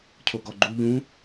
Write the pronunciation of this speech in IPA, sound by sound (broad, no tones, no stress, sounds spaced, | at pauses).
cʰ o ɡ ɔ ɡ͡ǃ u ʎ ũ